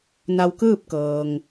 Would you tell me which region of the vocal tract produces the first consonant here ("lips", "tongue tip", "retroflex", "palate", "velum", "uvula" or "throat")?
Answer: tongue tip